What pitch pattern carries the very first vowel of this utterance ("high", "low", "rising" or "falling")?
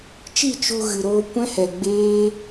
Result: falling